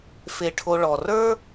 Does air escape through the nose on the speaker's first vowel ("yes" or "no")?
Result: no